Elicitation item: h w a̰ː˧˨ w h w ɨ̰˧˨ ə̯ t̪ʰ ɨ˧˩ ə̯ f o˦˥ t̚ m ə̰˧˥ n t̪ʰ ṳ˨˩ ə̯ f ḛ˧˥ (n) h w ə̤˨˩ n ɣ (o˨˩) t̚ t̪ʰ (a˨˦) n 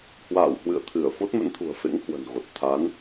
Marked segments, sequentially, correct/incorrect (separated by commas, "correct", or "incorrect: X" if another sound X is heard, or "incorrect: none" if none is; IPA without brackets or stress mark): incorrect: ŋ, correct, correct